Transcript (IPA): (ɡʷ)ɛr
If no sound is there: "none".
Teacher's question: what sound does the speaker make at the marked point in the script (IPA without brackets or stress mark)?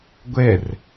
ɡʷ